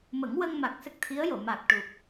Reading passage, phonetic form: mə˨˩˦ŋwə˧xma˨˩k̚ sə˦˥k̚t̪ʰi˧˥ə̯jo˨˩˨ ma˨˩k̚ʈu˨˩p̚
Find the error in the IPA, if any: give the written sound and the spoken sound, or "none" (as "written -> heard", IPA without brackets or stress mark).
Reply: x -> ŋ